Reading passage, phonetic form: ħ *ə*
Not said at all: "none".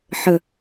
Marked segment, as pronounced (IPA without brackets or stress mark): ə